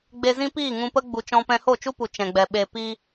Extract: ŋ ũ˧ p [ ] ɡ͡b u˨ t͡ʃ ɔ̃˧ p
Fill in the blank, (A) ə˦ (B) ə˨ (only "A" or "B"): A